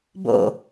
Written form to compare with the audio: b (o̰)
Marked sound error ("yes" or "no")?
no